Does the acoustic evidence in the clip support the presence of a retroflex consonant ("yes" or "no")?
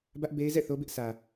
no